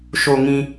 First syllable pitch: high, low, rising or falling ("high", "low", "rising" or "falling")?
low